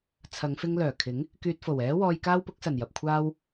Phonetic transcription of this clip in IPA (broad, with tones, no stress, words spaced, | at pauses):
t͡sʰɐ˨˧ŋfɪ˧ŋlœː˨˩kʰɪ˨˥ŋ | kyː˧t̚fo˨˩w ɛː˨˧ wɔː˧j kaː˥wpʊ˨˥k̚sɐ˨˩njɐ˨p̚ kʷʰaː˥w